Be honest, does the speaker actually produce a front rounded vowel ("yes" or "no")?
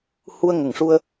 no